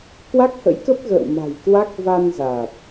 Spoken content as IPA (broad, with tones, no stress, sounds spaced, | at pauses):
k w a˦˥ k̚ h ə̰˧˥ j k ə˦˥ p̚ ɣ ə̰ː˧˨ w m a̤˨˩ j k w a˦˥ k̚ v a˧ n z a˨˩ t̚